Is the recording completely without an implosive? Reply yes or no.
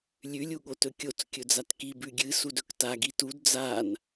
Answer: no